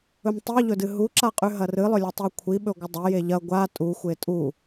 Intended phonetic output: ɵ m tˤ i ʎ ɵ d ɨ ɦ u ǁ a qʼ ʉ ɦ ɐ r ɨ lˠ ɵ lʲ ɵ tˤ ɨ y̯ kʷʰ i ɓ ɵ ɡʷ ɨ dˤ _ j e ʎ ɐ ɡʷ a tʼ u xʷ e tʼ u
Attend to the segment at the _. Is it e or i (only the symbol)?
e